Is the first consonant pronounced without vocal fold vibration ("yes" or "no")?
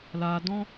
no